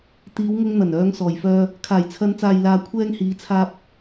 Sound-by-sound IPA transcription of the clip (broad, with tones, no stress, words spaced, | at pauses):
t̪iː˨˧wŋʊ˧ŋn̪ɐ˨˩n œː˨˧ŋsɔː˨˩jfœː˧ | kʰaː˨˩jt͡sʰɐ˨˧nt͡saː˨jlaː˨ kʷʰɛː˧ŋhiː˨˧t͡sʰaː˧p̚